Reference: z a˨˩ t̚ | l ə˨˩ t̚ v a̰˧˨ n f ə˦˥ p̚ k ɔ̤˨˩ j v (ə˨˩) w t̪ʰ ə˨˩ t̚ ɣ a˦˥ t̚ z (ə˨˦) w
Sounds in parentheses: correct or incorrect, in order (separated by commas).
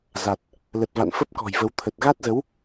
incorrect, correct